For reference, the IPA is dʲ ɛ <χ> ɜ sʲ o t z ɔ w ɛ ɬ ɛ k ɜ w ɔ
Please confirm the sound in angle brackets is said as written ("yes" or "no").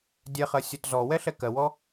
yes